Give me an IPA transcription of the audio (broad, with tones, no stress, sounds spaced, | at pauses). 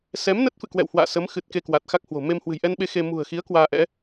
s ɛ˨˦ m n ə˦˥ t̚ f ɨ̰˧˨ k w ɛ̰˧˨ w h w a̰ː˧˨ s ə˨˦ m x ɨ˨˩ t̚ k e˧ k w a˨˩ t̚ x a˦˥ k̚ h w o̤˨˩ m e˧ m h w ɨ̤˨˩ j ʔ ɛ˧ n ɓ e˧ x e˧ m ṳ˨˩ ə̯ x i˨˦ ə̯ k w aː˧ ʔ ɛ̰˧˥